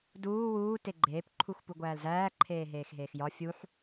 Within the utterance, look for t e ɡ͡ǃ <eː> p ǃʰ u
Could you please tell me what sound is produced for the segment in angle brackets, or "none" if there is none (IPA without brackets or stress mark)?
eː